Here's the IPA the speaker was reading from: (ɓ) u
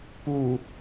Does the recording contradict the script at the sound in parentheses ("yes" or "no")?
yes